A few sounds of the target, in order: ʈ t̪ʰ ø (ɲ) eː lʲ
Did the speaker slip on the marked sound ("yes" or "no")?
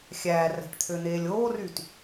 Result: yes